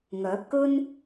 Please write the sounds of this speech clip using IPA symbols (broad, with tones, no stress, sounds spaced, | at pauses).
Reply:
ŋ œː˨˥ p̚ k ɵ˥ n